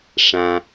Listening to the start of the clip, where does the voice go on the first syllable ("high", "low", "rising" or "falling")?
low